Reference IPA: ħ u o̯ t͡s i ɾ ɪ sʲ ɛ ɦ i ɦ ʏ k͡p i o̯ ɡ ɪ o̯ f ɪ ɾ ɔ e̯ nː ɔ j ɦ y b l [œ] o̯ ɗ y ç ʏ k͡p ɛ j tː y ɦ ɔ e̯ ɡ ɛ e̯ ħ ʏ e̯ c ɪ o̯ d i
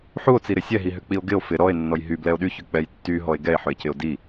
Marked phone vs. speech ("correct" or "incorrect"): incorrect